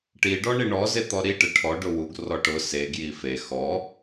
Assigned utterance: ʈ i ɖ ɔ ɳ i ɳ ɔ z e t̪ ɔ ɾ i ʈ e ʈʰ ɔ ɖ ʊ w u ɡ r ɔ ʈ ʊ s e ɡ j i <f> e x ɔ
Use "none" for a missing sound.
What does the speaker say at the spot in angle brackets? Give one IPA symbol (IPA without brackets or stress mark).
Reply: f